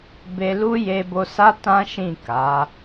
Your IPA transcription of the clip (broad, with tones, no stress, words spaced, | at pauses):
be˧lu˦ je˧bo˧sa˦ tã˦ʃĩ˦˨ ka˨˦